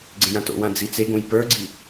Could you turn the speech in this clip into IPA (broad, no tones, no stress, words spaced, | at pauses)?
ɡ͡ǀẽjãto̰wã d͡zit͡seɡõj pə˞ɡ͡ǀi